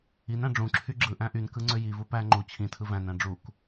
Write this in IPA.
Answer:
i n æ̃ ɖ͡ʐ ũ ǁʰ y ɡ͡ǁ ɯ ʔ æ̃ ʔ y n k ɯ ŋ͡ǀ ø j i v u p æ ŋ͡ǃ u t͡ɕʰ ĩ tʰ ɯ v æ̃ n æ̃ ɖ͡ʐ u k

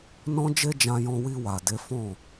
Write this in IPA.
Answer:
n ɔ̃˦ d͡ʒ e˦ d͡ʒ ã˧ j ɔ̃˧ w i˧ w a˨ d e˨˦ f ɔ̃˦˨

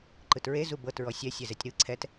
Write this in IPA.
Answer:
ǃ ɯ t ɹ e z u b ɤ t ɹ ɔ sʲ ɛ sʲ ɛ z ɛ tʲ ɾ ɯ ǀʰ ɛ t

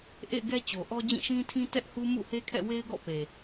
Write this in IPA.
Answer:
ʔ ḛ˦˨ ɪ̯ ɡ ɛ˦ t͡ɕ o˨ ʔ ɔ˦ d͡ʑ ĩ˦˨ ʃ ĩ˦ tʰ ĩ˦ t ɛ˦ ʔ h u˦ m ṵ˦˨ h e˦ kʰ ɛ̰˦˨ w e˦ ɪ̯ ɡ ɔ̰˦˨ p e˨

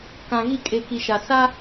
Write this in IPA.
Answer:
k ã˨ ɣ i˦˨ kʼ e˨ k i˨ ʃ a˨ s a˦

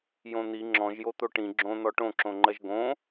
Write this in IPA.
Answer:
j õ n̪ i ŋ͡ǁ ɔ̃ ʒ j o t̪ o ʈ ĩ ɡ͡ǁ õ n̪ ɔ ʈ õ ǁ õ ŋ͡ǃ ɜ ʒ ɡ õ

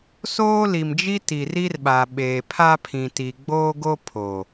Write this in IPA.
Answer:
s oː˦ l i˨ m d͡ʒ i˦ t i˨ r i˦ r ɓ a˨ ɓ eː˨ pʰ a˦ pʰ ĩ˨ t i˨ ɡ͡b oː˦ ɡ o˦ pʰ o˨

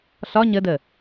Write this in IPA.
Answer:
ɬ ɒ ɲ ə d ə

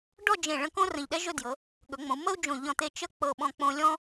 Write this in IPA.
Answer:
ɖ ɔ˥˧ d͡ʒ ẽ˧˩ ɭ ə̃˧ k õ˥ r ə̃˧˩ ʎ ɗ ɛ˥ ʒ ɵ˥˧ d j ɤ˩˧ | ɠ ɵ˩˧ ŋ͡m õ˩˧ u̯ m ə˥ u̯ d͡ʒ õ˧˩ ʎ ɔ̃˧˩ t̪ e˧ t͡ʃ ə˥ k͡p ɤ˧˩ ɓ ɔ̃˧ k͡p õ˧ lʲ ɔ̃˥

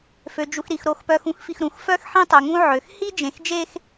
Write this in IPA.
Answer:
f ø˨ d͡ʒ u˨ x ɾ i˨ x ɾ o˨ x p œ˨ x ũ˦ x f i˨ x ɾ ũ˨ x f œ˦ x ħ ĩ˦ tˤ ø˨ ŋ ũ˦ ʕ ø˨ x h i˦ d͡ʒ ẽ˨ x d͡ʒ e˦ x

